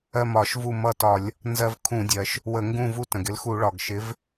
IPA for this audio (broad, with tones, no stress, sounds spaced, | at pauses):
ɜ˦˨ m ɒ˧˩˧ ʃ v u˦˨ m ʌ˦˨ t ɒ˧˩˧ lʲ | n z ɜ˦ v kʰ ũ˧˩˧ dʲ ɜ˩ ʃ | w ə˧˩˧ ŋ ɡ ũ˦˨ v u˦ t ə̃˩ ɡ ɪ˦ l x u˧˩˧ ɭ ɒ˩ ɡ ʃ ɪ˨˦ v